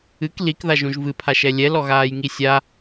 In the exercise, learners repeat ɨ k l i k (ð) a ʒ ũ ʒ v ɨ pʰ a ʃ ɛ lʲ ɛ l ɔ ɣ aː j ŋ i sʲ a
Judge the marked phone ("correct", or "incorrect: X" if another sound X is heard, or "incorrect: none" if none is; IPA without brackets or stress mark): correct